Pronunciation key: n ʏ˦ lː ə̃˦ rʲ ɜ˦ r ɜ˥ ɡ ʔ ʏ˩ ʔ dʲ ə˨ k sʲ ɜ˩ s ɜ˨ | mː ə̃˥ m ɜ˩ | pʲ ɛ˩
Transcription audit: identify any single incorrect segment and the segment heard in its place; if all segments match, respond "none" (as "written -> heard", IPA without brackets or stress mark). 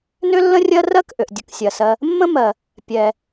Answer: ɡ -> k